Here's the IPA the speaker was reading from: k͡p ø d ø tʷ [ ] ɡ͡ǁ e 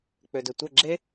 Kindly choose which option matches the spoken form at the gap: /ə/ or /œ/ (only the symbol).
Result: ə